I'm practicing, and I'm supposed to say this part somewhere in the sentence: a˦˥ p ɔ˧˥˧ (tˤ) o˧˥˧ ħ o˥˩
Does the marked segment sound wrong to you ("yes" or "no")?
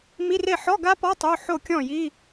no